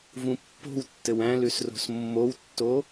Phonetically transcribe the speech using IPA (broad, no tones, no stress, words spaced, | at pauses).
vũpːo̤wtːɘw æ̃lʉs ro̤smːowtːo